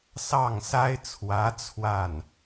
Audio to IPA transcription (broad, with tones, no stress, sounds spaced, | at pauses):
s ɑ˥˩ ŋ s a˥ ɪ̯ t͡sʰ w ä˧˥ t͡sʰ w a˥˩ n